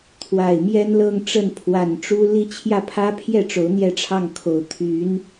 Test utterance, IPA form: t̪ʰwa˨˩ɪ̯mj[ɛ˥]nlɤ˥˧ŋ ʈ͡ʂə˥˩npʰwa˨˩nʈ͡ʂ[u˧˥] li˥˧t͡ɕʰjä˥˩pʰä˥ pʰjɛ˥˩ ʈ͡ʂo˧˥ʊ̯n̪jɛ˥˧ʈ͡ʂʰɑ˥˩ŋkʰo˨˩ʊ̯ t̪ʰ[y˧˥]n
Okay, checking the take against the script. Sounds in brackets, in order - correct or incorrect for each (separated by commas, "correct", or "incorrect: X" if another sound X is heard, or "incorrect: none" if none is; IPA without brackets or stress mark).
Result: correct, incorrect: u˥, correct